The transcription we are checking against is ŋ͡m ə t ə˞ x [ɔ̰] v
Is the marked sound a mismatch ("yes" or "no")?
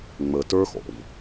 no